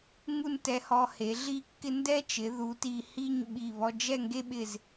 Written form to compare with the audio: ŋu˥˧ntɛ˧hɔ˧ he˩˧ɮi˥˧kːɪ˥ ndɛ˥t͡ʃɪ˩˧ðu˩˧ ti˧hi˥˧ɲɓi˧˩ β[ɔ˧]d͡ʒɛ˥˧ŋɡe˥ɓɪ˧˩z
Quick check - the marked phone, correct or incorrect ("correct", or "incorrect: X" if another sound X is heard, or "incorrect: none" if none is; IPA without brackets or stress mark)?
correct